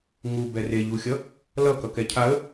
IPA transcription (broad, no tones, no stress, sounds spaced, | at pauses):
ŋ u b ɛ r e ʎ u xʲ ʌ | l ʌ k ʌ k ɛ cʰ a ə̯